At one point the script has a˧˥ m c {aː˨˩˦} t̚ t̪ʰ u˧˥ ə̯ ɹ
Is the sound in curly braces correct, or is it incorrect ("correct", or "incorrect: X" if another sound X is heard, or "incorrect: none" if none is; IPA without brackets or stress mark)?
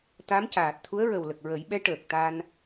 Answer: incorrect: aː˨˩